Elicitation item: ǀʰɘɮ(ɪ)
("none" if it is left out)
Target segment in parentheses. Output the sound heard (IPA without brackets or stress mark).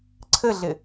ɪ